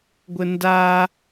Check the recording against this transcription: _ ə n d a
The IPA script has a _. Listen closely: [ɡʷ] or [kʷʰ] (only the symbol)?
ɡʷ